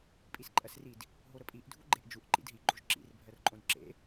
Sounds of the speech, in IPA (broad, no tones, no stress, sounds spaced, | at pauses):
pʼ i s ǃʼ ɜ s r i d | ɦ o ɾ ə pʼ i ʔ dʱ u ɡ͡ǃ e ʔ d͡ʒ u ʔ ǃ ḭ d ɦ i ɡ͡ǃ o ʒ ǁ ḭ r bʱ ɜ r ǃʼ õ d ǁ ḛ